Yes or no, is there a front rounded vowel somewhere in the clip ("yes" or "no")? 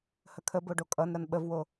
no